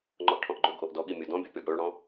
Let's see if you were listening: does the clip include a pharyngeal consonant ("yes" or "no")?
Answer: no